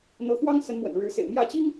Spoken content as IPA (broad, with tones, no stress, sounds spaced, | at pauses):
n̪ ɤ˧˥ x w ɑ˥ ŋ s ə˧˥ n m w ə̰˨˩ n ɻ ɻ̩˧˥ s ḛ˨˩ ɪ̯ m j ä˥˩ t͡ɕ i˥ ŋ